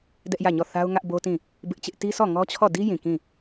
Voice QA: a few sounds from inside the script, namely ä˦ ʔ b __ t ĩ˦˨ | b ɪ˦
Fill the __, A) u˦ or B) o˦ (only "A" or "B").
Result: B